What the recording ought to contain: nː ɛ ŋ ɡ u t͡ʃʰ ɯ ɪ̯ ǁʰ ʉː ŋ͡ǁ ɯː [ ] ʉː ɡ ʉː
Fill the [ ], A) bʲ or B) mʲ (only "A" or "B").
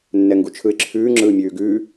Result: B